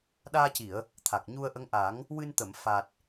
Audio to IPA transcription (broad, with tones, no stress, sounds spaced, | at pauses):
ɗ aː˧ c i˨˩˨ ə̯ | t̪ʰ a˨˩ k̚ ɲ u˧ ə̯ ʔ ə˧˥ ŋ ʔ a˨˩˦ ŋ | w ɨ˧ n t̪ ə˨˩˨ m f a˨˩ t̚